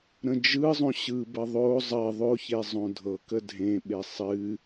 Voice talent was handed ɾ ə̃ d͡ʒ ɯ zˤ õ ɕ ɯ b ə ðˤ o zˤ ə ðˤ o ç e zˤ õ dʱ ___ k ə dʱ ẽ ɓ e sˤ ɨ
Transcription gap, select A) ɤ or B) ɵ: A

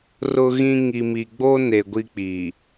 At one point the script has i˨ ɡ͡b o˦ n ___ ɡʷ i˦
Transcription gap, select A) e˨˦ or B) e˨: B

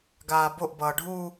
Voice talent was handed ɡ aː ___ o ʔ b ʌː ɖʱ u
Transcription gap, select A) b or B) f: A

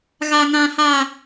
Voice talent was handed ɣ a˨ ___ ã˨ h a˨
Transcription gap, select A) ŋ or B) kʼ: A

